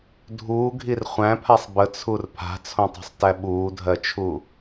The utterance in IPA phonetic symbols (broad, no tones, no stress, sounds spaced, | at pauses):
dʱ uː ɡʱ i r χʷ æ̃ pʰ a sˤ b ə t͡sʰ u r pʰ a̤ t͡sʰ õ tˤ o̤ sˤ t æ ɓ uː dʱ ɜ t͡ʃʰ u